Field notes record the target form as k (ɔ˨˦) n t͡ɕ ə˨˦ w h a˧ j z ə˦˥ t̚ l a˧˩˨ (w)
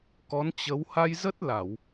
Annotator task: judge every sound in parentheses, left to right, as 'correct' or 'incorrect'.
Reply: correct, correct

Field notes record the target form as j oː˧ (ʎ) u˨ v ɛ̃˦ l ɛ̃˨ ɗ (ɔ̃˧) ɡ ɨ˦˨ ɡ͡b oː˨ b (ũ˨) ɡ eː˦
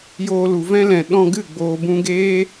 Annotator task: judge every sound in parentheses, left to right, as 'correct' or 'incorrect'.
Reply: incorrect: l, correct, incorrect: ũ˧

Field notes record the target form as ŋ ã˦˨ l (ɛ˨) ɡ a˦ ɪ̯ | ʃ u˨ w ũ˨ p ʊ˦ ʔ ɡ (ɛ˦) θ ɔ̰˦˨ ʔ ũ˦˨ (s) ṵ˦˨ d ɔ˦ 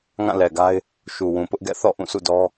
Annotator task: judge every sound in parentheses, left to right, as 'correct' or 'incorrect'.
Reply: correct, incorrect: ɛ̰˦˨, correct

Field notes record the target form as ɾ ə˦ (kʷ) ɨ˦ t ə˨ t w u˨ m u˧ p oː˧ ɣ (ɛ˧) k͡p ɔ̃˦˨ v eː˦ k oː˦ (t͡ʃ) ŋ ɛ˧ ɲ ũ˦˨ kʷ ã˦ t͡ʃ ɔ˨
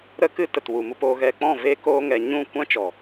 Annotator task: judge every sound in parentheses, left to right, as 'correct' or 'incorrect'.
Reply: incorrect: k, correct, incorrect: none

